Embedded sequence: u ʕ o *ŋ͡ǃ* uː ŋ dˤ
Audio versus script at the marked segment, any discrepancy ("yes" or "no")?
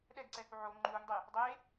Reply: no